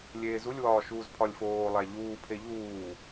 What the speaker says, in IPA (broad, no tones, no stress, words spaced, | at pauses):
lʲeːzulʲ wɒːʃuːzpʰɒlʲfoː lˠæʎuː pʰeʎuː